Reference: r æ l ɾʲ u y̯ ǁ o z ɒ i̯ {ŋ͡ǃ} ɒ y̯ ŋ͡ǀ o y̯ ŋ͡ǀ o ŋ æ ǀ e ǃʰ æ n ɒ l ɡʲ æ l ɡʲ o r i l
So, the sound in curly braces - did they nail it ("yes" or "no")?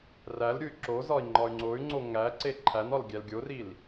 yes